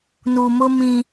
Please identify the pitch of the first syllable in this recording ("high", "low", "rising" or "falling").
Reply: low